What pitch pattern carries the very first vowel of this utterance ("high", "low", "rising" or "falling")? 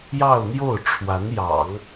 falling